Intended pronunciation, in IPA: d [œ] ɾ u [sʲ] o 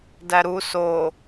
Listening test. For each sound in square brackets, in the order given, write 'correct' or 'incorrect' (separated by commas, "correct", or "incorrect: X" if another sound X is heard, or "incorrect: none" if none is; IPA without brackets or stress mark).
incorrect: æ, incorrect: s